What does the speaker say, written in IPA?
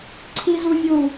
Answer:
ǀʰi˦zu˦vʲu˦˨

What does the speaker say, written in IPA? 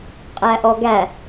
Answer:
qʼæʔɔɡæ

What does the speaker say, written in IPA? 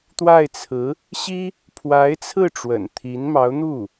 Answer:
t̪wa˥˩ɪ̯t͡sʰɹ̩˧˥ | ɕi˥ | pʰwa˧˥ɪ̯t͡sʰɹ̩˥˩ ʈ͡ʂwə̰˨˩n t̪ʰi˧˥nmɑ˧˥ʊ̯n̪u˥˩

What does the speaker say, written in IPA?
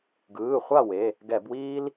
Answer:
ɡɯː˩˧˩χʷa˥˨we˩˧˩ | ɡɛ˧˩˧bwiː˥l

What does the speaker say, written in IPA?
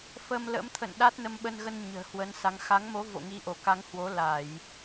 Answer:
fə˧mlə̰˧˥mt̪ʰə̰˧˨n ɗa˦˥t̚nə˧mɓə˧nɣə˧n ɲə̤ː˨˩hwə˨˦nsa˨˦ŋ xa˨˦ŋmo˨˦vo̰˧˨ ŋi˨˦ʔo˧˩ka˨˦ŋhwo˨˦ la˧˩˨j

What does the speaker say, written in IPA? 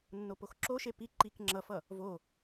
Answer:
nːopoxǁoʃe pi ǃik ŋ͡ǁʌfʌ | vo

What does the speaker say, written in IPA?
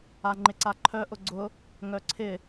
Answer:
aŋ͡ǃɪǀaǃʰœ ʔʊɡ͡ǀʊ | ŋœǀʰɪ

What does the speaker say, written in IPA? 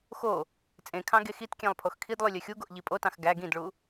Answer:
xo | t͡sʼẽkʰɑ̃ ɡexitkʲẽlˠ pʰoxkʰidlˠy lʲøxʲuɡoʔ ʎipʼotɑ̃x ɡæ ɡĩdɭu

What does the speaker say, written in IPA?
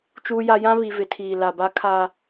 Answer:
t͡ʃuː˦ja˦ jã˦βi˨ vɪ˨tʰiː˨ la˨ba˦ kʰa˦

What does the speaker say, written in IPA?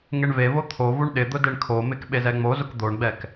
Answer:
ŋeɳvevo t̪ʰovuɳ ɗɪd̪ʊ deɳkʰomɪk ɓezɛŋ͡mozʊk d̪oɳɡ͡bɛk

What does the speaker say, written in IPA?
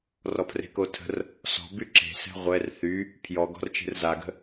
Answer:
rɔpʰre̤kotʰə̤r | sɔ̤ byǁe̤sɛ̤ ʁʷɛr θy | pʰjɔɡɔ̤rt͡ʃe̤r zaɡə̤

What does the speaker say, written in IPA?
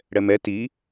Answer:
ɽɛmɛ ti

